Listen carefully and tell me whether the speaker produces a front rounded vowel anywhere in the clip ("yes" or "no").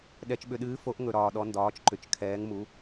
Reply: yes